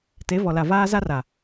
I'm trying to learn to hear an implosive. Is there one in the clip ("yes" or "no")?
no